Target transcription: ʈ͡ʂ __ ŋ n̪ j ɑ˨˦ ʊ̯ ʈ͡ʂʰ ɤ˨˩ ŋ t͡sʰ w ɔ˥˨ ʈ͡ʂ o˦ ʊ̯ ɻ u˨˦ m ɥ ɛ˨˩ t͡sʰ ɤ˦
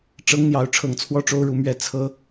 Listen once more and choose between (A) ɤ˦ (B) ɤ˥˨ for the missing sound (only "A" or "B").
A